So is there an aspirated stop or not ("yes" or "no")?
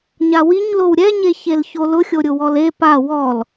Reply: no